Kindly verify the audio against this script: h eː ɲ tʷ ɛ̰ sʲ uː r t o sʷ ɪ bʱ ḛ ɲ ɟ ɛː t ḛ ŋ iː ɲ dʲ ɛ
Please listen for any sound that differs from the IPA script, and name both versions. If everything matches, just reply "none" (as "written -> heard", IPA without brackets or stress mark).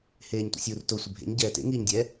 none